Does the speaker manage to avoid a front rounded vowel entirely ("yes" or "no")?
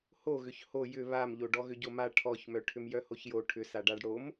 no